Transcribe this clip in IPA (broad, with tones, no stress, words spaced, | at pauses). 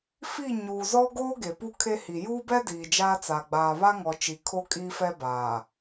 fi˦˨ɲuː˨ zɔ˦ɡoː˦ ɡe˨pu˦kʰe˦hi˨ juː˦bɛ˦ diː˨d͡ʒaː˦t͡sa˨ ɡ͡baː˨βa˦ŋɔ˨ t͡ʃi˨kʰo˦kʼiː˦ fɛ˦baː˨